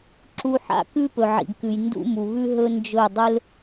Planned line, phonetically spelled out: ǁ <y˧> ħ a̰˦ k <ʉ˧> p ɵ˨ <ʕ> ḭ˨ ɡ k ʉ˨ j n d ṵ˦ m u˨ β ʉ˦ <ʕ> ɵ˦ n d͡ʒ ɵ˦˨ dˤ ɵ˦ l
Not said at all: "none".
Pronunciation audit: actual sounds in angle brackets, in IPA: u˧, ʉ˦, ʕ, ɦ

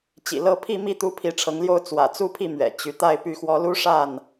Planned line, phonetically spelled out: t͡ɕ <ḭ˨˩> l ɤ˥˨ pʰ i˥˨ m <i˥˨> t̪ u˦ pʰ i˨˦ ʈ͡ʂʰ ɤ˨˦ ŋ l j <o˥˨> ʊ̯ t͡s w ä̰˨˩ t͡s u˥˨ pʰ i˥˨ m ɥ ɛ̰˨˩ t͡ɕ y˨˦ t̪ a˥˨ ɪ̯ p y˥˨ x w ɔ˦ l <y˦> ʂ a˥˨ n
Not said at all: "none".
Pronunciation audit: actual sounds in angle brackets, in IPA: ḭ˨˩, i˥˨, o˥˨, u˦

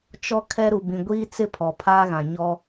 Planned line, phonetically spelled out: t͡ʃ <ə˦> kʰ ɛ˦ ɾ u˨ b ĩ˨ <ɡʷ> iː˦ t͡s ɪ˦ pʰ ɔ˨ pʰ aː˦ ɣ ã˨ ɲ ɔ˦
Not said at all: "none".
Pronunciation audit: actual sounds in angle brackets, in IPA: ɔ˦, ɡʷ

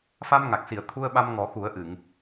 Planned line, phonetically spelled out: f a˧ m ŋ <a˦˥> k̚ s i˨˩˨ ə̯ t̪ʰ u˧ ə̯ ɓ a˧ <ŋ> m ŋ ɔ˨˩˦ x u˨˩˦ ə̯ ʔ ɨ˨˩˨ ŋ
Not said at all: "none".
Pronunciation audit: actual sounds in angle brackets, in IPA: a˨˩, none

